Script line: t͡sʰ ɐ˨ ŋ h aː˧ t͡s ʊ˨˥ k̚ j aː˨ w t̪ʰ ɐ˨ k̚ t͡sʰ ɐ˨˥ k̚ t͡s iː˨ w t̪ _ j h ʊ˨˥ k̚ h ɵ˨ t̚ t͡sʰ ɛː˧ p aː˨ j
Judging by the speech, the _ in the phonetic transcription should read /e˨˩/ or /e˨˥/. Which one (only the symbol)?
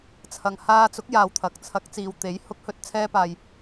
e˨˥